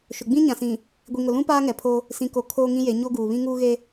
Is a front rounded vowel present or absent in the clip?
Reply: absent